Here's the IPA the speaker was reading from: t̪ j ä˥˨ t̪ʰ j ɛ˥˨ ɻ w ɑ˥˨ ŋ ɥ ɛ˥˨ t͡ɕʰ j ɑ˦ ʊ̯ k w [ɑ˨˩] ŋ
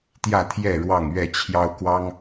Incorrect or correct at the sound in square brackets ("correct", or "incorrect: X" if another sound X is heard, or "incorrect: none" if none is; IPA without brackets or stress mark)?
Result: incorrect: ɑ˦